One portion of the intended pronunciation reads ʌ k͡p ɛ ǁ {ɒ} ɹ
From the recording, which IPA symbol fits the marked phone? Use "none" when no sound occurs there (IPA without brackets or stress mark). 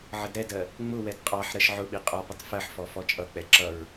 ʌ